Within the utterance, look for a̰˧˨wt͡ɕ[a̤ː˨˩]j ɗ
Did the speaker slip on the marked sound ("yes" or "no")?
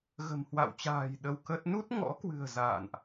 no